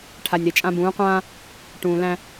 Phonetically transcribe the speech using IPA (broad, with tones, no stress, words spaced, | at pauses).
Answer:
ʈʰa˨nʲɾe˨t͡ʃʼã˦ bũː˨˦qʷãː˦ | ʈũː˨læ̃˦